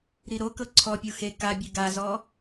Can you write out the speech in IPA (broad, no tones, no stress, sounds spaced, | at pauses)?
ɾ i ɾ o k ɤ ǀʰ ɔ pʲ u x e k a bʲ ɯ ɡ a z ɔ